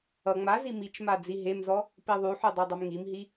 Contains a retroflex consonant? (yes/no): no